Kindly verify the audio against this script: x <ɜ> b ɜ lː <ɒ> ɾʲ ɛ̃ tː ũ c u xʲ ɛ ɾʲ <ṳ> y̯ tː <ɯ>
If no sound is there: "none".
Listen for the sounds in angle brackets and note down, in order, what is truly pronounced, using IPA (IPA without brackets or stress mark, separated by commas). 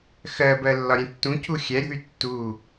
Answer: ɜ, ɒ, ṳ, u